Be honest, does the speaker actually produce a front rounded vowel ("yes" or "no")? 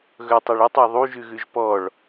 yes